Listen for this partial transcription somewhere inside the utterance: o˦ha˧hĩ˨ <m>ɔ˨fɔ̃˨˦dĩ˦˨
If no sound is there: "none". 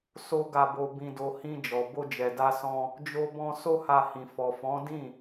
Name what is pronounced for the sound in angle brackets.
f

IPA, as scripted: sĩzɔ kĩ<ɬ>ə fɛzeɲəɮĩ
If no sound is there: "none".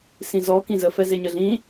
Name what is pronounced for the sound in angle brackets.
z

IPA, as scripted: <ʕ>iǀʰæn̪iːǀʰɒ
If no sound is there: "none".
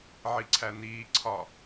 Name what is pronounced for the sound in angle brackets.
ʕ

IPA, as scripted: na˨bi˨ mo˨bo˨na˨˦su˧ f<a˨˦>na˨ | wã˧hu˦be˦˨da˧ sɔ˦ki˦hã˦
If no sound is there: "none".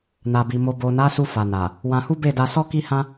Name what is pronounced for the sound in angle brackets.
a˨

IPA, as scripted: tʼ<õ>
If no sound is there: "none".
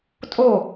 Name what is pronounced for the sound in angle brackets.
o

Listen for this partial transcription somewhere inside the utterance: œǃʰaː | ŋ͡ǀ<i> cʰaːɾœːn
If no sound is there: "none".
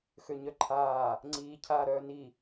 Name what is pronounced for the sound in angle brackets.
iː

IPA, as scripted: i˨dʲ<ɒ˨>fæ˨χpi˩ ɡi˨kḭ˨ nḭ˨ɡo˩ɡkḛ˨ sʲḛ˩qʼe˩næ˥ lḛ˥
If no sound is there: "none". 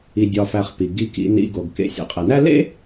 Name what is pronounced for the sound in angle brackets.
ɒ˨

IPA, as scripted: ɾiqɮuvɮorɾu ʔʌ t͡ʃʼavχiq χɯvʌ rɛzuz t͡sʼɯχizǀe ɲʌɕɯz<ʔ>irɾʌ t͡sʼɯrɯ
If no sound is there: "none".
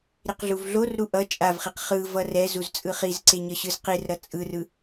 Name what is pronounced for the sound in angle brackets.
q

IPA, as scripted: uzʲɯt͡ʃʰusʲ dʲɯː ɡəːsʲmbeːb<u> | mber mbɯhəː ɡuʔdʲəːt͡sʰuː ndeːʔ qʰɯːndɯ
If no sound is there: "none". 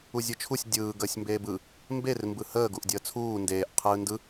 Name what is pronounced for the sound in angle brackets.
ɯ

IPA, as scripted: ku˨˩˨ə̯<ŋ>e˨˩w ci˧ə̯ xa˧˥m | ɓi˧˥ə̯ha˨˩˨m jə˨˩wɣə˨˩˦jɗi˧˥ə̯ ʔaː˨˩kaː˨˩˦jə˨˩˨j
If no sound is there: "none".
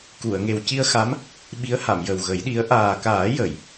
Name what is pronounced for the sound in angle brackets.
ŋ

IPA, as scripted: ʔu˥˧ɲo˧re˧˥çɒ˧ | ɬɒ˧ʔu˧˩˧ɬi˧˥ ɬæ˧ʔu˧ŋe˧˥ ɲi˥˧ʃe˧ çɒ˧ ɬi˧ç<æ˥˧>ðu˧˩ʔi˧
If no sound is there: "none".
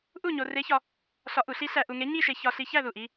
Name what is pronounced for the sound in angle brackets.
æ˥˧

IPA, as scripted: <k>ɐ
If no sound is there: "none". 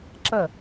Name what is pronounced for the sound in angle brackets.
ǁ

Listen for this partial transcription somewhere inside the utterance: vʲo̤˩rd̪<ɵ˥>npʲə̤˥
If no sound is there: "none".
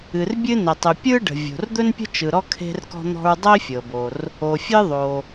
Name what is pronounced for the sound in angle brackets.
ɵ˥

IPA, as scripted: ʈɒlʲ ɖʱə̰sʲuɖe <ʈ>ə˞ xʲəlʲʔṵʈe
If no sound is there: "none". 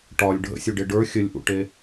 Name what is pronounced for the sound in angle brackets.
ɖ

